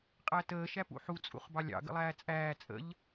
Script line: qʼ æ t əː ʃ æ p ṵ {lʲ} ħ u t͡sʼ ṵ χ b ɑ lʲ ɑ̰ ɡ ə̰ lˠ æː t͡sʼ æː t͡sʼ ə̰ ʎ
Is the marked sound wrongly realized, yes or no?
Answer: yes